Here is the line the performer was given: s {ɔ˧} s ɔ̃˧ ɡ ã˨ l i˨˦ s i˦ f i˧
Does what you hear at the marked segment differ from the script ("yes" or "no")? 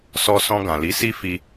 no